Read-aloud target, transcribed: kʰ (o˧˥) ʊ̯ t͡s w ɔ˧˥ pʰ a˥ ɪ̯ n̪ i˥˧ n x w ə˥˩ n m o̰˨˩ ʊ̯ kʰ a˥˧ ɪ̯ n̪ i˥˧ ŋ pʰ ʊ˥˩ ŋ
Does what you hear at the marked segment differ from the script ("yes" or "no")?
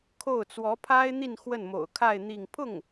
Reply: yes